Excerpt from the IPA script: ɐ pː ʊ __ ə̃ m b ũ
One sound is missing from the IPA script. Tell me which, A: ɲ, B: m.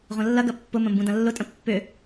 B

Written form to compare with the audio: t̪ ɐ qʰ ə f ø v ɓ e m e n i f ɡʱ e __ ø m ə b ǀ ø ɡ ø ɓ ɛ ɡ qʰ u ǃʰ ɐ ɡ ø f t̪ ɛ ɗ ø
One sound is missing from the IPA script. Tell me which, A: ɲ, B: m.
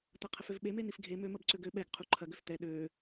B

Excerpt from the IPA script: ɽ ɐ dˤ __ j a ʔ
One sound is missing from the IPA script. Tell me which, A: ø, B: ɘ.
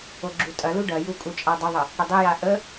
B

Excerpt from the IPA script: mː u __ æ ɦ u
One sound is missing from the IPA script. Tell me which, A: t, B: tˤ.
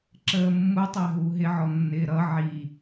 B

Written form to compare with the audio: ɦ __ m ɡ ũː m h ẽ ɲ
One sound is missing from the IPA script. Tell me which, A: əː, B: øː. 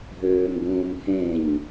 B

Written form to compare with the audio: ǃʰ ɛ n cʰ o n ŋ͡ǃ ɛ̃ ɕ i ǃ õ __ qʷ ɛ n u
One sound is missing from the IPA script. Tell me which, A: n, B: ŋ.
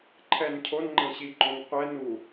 B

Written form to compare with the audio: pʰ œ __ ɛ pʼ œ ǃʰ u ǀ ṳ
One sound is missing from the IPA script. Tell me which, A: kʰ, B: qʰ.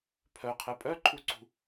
B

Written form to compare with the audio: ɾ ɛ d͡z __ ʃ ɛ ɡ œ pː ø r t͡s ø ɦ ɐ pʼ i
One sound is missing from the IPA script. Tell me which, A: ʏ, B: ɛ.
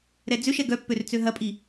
A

